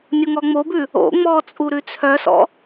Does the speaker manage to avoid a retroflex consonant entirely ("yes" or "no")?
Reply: yes